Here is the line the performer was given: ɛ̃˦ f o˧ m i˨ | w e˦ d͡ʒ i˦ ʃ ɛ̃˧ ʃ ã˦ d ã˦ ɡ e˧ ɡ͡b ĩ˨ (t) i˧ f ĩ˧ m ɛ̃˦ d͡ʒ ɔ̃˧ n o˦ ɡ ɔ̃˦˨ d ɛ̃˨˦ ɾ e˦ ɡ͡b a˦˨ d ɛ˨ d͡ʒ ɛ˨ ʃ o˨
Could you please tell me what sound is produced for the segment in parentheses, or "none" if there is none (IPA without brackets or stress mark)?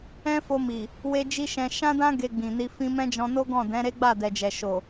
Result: n